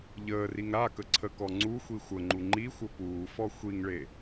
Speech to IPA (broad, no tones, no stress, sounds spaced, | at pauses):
ʎ əː r i ŋ ɾ a k ə ǀʰ ə k ɔ ŋ͡ǀ u xʷ i xʷ ə ŋ͡ǃ u ŋ͡ǃ i xʷ ə p uː f ɔ xʷ i ŋ ɭ e